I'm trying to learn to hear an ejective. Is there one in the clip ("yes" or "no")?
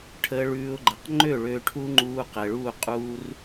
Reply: yes